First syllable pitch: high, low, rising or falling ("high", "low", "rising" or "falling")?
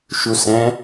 low